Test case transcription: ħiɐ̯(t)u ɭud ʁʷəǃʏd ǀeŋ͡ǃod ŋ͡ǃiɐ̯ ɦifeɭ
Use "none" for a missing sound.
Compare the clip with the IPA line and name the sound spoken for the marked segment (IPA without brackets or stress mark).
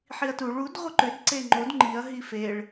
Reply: t